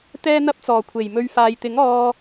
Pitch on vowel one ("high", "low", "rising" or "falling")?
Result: high